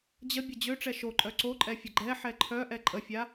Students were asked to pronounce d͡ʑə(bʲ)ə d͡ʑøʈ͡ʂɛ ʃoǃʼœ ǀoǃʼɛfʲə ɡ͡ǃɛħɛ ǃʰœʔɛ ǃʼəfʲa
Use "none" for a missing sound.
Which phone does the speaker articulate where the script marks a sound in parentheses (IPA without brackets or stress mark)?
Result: bʲ